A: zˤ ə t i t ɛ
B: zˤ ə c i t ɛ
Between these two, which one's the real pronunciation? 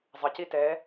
B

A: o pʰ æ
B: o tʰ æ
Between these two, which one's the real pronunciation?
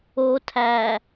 B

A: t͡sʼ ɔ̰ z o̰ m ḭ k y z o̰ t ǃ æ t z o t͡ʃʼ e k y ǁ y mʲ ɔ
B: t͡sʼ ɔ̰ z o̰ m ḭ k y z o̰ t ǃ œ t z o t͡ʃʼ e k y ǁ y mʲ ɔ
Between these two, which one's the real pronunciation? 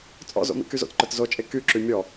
B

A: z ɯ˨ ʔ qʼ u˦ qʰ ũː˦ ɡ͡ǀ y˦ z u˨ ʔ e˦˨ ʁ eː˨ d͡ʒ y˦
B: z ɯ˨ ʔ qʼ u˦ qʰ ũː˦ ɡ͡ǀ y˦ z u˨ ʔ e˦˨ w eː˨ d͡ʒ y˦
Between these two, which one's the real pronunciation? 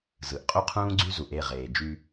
A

